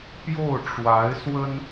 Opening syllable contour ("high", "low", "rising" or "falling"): falling